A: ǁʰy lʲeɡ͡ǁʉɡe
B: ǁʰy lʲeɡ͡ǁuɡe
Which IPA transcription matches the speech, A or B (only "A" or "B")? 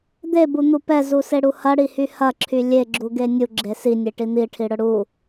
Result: B